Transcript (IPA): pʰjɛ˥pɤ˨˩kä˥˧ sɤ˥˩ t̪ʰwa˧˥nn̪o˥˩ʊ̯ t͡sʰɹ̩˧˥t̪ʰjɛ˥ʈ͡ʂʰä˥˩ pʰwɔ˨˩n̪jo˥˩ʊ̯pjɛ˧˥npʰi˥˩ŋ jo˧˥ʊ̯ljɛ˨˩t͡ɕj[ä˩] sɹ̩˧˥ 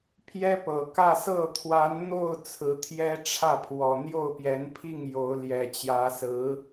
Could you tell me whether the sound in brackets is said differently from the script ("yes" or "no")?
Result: yes